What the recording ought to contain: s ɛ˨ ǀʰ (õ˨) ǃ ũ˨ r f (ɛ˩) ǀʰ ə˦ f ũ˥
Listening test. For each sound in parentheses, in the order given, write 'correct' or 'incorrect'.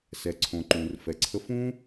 correct, incorrect

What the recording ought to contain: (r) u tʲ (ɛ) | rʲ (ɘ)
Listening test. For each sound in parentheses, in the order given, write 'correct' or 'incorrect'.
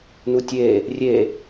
incorrect, incorrect, incorrect

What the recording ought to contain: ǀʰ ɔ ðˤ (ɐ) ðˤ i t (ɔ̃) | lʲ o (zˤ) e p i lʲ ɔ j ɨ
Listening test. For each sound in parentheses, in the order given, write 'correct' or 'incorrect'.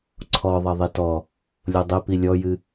correct, incorrect, incorrect

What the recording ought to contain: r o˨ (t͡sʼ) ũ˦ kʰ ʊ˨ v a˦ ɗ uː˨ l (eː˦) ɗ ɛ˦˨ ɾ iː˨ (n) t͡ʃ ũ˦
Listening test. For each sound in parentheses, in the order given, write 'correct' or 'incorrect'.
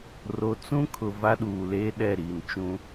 incorrect, correct, correct

